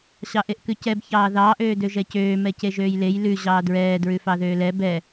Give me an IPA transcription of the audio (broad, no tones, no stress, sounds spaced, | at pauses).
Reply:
ɕ ɑ ʔ e ʔ k ʉ c ɛ b ç ɑː ð ɑː ʔ øː d ø ʒ ɛ c øː m ɛ c e ʒ øː j l e j l ʉ ʑ ɑː d ɹ ɛː d ɹ ʉ f ɑ ð øː l ɛ b ɛ